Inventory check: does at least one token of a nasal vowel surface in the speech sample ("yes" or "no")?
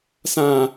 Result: yes